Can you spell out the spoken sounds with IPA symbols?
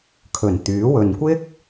kʰ ɵ˨˩ n t̪ yː˨˥ w ɵ˨ n kʷ ɪ˥ k̚

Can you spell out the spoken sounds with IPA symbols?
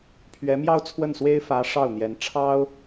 pʰ ɥ ɛ˧˥ m j ɑ˥˧ ʊ̯ t͡sʰ w ə˥˩ n s w e˥ ɪ̯ f ä˧˥ ʂ ɑ˥˩ ʊ̯ n̪ j ɛ˧˥ n ʈ͡ʂʰ ɑ˥ ʊ̯

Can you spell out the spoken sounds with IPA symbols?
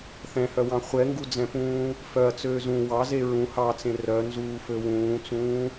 θ ɛ̃ h œ w ɑ̃ χʷ ɛ ŋ ɡ u d͡z ɛ̃ p ũː | f œ ɐ̯ t͡s øː z ũ w ɑ z e ɹ ũ h ɑ t͡s ẽ r œ n z uː f ø w ũː t͡s ũː

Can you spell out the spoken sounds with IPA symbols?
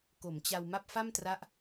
k o˩˦ m t͡ɕ a˧ w m a˥˩ p̚ f a˥˩ m t r a˦˥ ʔ

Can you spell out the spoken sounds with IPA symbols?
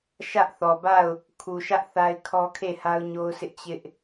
ʃ ä˦ ʔ θ ɔ˨ b a˦˨ ʊ̯ | kʰ u˨ ʃ ä˦ ʔ θ a˦ ɪ̯ kʰ ɔ˦ kʰ e˦˨ h a˦ ʊ̯ ɲ o˦ ʊ̯ sʰ ɪ˦ ʔ t͡ɕ ɪ˦ ʔ

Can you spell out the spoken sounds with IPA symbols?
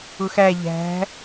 ʊ x æ ʎ æ̤

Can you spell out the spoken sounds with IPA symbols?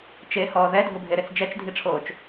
t͡ʃ e h ɔː ð ɛ dʱ ʊ bʱ e ɾ e t͡s d͡ʒ ɛ t͡ʃ dʱ i ʈ͡ʂʰ oː t͡ʃ

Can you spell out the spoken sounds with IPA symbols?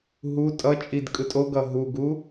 ɦ u tʼ ʌ t͡ʃʼ i d kʼ ɯ tʼ o ɡ ʌ ɦ u ɡ u

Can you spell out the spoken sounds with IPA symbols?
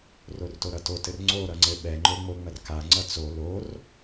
r o r t o ɾ ʌ t o t ɘ r ŋ͡ǀ o ɾ ʌ ŋ͡ǀ ɘ ɓ ɛ ŋ͡ǃ o ŋ͡m o ŋ͡m ɐ r k a ŋ͡ǀ ʌ t͡s o l o r

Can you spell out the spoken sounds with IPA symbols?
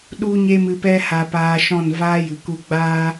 ɗ u˦ ɲ e˦ m ɨ˧ p ɛ˦ h a˧ p aː˧ ʃ ɔ̃˦˨ n v aː˦ j ɨ˨ k u˧ ɡ͡b aː˦

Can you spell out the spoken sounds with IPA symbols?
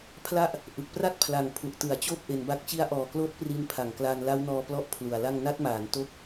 pʰ l a˥˩ ʔ | ʔ ɯ˨˩ k̚ p r a˥˩ t̚ pʰ l a˨˩ ŋ pʰ u˨˩ ʔ t ɯ˩˦ a̯ t͡ɕ oː˥˩ p̚ ʔ e˧ n b a˥˩ k̚ t͡ɕ i˦˥ a̯ ʔ ɔː˨˩ k l oː˦˥ t̚ p r i˧ n pʰ a˩˦ ŋ k l aː˧ n l a˦˥ w n ɔː˧ p l ɔ˥˩ ʔ pʰ l u˨˩ a̯ l a˥˩ ŋ n a˦˥ t̚ m aː˩˦ n t o˥˩ k̚

